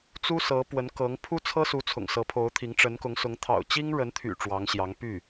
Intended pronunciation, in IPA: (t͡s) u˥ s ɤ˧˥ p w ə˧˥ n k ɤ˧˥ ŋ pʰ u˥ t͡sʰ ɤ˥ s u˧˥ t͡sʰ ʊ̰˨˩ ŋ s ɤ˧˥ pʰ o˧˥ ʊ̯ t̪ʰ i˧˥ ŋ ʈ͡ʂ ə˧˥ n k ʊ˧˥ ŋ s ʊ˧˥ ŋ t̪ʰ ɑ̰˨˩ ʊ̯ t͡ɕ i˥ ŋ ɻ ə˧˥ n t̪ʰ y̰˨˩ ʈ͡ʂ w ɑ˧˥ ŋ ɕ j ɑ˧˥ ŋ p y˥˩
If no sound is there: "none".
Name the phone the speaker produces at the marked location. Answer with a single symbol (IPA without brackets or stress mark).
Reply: t͡s